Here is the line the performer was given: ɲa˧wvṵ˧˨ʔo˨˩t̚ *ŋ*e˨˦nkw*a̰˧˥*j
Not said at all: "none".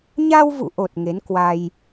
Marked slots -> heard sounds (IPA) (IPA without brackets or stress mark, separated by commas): ŋ, a˧